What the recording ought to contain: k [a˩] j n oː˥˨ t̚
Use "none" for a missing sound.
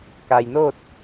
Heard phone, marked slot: a˩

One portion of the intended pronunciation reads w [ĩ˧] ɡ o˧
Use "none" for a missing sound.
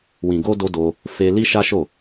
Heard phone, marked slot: ĩ˨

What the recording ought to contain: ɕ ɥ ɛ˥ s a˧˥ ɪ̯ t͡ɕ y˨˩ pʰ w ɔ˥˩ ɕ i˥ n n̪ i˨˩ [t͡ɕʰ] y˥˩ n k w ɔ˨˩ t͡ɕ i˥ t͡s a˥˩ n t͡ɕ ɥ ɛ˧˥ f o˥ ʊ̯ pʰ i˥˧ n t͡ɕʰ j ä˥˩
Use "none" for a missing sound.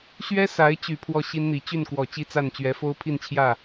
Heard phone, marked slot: t͡ɕ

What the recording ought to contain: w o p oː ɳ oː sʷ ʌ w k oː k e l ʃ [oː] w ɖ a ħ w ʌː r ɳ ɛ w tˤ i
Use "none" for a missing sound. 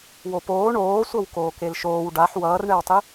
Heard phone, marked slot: oː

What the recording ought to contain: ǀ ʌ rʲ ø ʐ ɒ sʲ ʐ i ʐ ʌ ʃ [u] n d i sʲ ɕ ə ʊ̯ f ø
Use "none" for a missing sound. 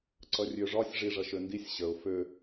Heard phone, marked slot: ø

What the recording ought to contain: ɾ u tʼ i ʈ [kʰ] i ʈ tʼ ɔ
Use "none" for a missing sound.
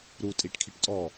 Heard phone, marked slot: kʰ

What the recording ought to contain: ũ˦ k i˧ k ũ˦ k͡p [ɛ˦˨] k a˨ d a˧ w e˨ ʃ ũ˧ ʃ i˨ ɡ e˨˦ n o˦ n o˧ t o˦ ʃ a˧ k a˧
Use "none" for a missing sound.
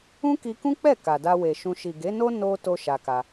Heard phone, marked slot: ɛ˦˨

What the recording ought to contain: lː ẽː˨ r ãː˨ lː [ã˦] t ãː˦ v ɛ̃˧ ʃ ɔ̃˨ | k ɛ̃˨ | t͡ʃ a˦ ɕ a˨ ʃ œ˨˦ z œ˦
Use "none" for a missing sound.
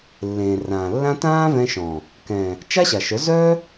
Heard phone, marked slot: ã˦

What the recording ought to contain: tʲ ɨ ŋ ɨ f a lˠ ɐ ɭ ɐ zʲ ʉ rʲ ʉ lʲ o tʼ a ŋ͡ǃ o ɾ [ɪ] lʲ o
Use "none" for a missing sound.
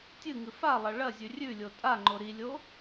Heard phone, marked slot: i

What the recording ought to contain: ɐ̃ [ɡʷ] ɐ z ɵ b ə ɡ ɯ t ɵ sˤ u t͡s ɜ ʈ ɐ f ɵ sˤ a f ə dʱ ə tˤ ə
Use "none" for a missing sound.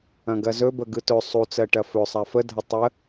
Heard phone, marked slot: ɡ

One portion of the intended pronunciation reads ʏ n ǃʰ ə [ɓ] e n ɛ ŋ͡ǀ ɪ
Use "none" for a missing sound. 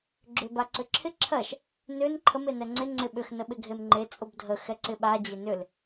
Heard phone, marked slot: m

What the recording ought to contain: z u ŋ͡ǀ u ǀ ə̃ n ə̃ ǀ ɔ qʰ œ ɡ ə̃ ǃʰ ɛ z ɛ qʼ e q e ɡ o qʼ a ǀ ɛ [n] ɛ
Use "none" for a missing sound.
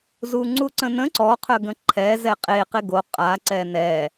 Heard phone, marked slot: n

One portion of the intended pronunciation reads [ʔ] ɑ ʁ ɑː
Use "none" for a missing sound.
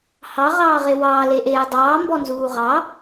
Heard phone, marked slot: h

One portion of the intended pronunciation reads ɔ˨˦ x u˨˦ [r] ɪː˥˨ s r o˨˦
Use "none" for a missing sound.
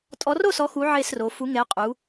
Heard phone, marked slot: ʕ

